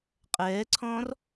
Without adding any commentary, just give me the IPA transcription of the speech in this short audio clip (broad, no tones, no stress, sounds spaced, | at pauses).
qʼ ɛː ǀʰ ɔ̃ː r